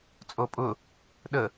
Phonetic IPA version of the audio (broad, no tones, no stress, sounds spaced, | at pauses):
t͡sʼ o pʼ ʊ | ɗ ə